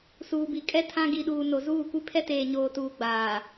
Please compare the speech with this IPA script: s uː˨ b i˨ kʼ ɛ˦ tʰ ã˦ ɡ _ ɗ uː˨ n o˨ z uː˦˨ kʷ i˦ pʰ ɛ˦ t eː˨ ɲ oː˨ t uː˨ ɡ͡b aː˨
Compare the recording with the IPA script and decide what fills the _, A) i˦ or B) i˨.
B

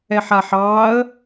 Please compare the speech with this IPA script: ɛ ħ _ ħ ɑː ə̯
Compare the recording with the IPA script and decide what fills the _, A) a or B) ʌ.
A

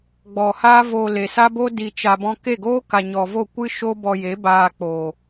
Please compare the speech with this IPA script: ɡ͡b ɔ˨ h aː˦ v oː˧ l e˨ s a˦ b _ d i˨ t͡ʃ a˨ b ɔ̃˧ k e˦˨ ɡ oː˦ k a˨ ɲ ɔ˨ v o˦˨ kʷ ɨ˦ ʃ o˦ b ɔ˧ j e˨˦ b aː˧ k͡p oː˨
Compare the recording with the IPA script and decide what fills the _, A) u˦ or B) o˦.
B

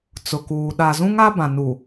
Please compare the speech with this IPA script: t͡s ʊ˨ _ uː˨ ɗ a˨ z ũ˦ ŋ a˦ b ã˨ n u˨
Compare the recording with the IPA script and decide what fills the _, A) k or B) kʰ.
A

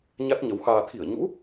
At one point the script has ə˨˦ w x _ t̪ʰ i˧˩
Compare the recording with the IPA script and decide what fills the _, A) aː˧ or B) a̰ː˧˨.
A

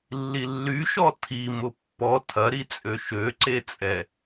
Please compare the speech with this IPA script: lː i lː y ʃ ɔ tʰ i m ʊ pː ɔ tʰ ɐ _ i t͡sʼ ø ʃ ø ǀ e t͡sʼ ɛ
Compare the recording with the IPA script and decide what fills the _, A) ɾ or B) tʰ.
A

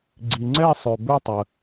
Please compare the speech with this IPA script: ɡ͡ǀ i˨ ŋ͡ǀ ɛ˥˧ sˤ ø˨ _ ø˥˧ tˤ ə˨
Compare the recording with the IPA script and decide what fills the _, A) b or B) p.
A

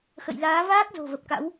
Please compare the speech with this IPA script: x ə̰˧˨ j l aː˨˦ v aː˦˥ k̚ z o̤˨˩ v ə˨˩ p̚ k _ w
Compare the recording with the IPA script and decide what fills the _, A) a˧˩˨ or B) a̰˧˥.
B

